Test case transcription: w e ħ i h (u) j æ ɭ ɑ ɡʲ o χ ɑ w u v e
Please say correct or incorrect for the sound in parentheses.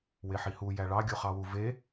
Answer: correct